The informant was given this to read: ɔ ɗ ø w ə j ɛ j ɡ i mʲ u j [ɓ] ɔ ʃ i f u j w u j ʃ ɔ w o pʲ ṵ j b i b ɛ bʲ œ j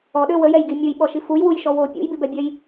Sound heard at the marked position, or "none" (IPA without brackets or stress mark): ɓ